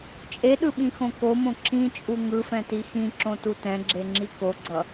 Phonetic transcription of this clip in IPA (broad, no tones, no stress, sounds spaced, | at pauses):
t͡ʃʼ e ɗ ɯ ɓ ĩ x õ k o m õ ǁ ĩ t͡ʃʼ u ŋ ɯ f ɛ̃ t i x ĩ ǁ õ t u t ɛ̃ ɡ͡ǁ e ŋ͡ǁ i k o ɡ͡ǀ ʌ